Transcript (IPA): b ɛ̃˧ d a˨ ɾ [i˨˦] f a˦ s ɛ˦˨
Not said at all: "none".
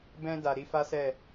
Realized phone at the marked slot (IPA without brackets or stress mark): i˨˦